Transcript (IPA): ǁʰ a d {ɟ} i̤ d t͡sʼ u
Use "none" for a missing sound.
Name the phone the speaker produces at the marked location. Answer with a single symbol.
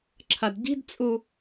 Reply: ɟ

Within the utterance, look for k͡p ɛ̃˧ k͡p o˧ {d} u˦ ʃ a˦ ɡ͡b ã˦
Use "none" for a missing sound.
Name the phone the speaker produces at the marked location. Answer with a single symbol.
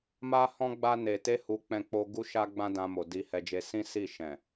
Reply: ɡ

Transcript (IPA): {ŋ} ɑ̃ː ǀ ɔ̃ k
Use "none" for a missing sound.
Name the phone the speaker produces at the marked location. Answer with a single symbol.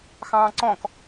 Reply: x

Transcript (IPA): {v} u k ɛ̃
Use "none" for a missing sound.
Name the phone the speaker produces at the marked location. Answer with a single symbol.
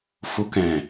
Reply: f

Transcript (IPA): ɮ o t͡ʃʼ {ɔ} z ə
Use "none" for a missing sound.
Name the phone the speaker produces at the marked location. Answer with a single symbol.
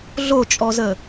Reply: ɔ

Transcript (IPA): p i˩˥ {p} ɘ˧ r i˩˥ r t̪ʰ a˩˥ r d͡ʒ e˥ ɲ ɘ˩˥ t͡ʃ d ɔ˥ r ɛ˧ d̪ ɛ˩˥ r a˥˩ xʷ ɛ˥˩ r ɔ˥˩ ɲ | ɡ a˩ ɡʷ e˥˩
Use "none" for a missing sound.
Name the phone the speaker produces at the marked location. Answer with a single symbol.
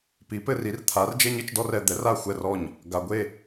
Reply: p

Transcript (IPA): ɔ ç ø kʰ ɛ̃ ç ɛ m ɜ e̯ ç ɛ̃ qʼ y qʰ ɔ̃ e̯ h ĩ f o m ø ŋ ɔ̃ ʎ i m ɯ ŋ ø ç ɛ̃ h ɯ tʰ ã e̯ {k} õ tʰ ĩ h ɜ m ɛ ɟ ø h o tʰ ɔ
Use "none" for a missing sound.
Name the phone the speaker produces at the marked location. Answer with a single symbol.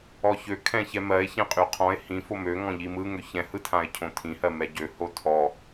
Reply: cʰ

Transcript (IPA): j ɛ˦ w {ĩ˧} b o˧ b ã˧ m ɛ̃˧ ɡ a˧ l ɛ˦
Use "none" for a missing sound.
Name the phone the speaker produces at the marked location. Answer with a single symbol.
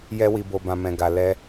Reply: i˧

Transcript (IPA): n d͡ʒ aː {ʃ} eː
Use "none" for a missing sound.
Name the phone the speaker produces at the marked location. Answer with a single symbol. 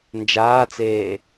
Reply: t͡s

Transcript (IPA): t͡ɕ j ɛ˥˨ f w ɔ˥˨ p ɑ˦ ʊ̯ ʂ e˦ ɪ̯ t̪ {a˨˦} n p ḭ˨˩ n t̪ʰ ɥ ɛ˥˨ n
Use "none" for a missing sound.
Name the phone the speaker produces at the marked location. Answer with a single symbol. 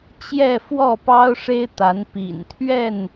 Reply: a˨˦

